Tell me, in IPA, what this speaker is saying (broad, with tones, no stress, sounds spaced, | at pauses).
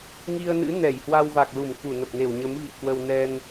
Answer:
ŋ i˧ ə̯ n ɨ̰˧˥ n ɛ˧˩ j h w a˧ w v a˨˩ k̚ l u˧˩ m k u˧˩ n ə˨˩ p̚ n e˧˩ w ɲ ə˨˦ m v ḭ˧˨ ə̯ k w ə˧ w n ɛ˧ n